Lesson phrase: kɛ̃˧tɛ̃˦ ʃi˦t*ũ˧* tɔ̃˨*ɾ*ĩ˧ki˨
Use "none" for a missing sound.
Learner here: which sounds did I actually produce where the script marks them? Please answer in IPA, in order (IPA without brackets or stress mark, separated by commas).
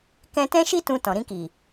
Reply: ũ˧, ɾ